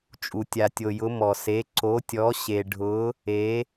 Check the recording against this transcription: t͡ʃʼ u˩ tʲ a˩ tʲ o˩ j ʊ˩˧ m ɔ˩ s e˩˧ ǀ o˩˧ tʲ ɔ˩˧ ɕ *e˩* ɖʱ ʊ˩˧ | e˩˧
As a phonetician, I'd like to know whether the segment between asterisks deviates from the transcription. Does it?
no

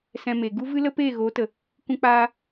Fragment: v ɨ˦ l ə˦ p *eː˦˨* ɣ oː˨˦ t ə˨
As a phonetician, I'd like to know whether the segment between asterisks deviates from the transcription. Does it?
no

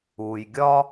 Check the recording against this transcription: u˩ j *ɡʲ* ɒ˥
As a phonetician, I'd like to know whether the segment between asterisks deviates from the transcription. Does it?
no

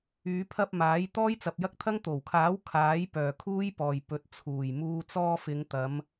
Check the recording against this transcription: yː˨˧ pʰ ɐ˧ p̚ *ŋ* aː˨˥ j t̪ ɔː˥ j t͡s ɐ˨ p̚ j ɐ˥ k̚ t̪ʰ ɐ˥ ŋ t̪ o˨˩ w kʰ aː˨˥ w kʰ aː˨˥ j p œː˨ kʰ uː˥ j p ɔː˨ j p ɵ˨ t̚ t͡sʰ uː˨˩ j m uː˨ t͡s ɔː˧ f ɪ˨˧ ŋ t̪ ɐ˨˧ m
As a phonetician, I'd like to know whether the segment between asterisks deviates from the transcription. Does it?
yes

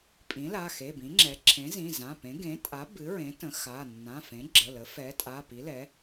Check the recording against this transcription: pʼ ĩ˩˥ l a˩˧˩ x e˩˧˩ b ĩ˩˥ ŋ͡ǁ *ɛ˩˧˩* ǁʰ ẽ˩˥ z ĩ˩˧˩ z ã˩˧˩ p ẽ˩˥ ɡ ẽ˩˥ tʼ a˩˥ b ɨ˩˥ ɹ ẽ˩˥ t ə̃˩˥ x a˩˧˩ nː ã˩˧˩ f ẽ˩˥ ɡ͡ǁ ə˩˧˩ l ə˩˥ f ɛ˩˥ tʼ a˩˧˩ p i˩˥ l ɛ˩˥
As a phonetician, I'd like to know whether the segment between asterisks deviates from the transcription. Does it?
yes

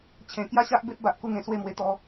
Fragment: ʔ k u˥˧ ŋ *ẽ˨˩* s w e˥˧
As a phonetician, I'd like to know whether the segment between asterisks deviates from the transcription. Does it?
no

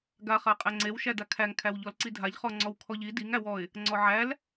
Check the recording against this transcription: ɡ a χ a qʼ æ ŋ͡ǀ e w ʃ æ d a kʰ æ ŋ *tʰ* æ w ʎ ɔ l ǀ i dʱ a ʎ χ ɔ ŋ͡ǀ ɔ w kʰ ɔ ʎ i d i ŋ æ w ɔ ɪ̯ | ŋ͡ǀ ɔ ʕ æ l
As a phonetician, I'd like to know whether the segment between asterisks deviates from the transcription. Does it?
yes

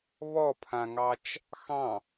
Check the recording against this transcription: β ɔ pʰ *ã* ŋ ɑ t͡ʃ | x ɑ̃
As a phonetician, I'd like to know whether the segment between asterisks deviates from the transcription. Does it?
no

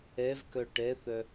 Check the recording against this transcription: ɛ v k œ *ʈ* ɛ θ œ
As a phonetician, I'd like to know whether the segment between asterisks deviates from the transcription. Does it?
no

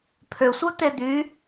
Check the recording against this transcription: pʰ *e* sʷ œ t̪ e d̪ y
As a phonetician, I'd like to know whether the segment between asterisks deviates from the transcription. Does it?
yes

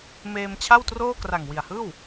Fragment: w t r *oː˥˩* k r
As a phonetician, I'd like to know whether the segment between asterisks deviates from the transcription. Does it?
no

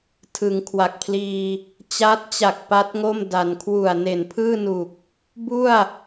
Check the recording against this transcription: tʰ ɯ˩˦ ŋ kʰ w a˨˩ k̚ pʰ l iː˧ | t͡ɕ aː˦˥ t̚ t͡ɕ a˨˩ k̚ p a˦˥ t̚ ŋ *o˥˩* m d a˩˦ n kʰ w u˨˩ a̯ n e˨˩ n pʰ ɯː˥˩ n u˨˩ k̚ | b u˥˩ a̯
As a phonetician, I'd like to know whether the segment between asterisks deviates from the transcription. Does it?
no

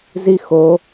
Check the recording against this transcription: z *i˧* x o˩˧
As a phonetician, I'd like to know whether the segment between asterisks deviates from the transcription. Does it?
no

